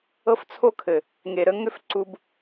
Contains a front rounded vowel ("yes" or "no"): yes